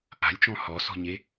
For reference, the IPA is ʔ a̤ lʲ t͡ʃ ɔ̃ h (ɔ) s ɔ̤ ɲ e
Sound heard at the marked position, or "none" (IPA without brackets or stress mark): ɔ